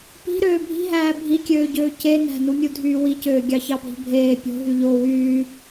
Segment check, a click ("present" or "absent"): absent